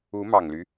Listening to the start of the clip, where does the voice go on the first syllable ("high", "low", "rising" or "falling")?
rising